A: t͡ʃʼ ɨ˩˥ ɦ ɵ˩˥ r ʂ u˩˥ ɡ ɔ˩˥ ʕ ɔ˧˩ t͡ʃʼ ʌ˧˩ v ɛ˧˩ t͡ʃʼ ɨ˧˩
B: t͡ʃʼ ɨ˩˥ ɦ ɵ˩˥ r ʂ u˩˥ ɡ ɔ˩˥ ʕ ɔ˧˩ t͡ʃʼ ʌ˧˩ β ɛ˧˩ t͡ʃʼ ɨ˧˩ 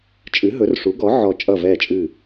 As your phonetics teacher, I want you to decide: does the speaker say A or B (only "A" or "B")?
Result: A